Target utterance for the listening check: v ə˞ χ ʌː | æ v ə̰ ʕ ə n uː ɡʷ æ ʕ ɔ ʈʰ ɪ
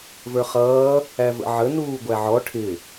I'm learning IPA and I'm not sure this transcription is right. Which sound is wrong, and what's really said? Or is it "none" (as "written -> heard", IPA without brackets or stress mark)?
none